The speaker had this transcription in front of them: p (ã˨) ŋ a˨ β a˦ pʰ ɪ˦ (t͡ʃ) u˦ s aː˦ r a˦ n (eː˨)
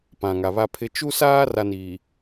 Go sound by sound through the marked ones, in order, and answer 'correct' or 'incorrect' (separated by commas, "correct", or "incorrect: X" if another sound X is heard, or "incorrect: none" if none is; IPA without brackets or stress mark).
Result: correct, correct, incorrect: iː˨